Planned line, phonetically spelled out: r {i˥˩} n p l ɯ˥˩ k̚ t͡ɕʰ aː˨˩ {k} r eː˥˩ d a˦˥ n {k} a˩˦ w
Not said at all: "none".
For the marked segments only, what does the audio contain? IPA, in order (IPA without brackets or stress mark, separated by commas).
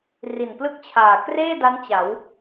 i˨˩, k, t͡ɕ